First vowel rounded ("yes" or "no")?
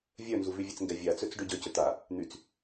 yes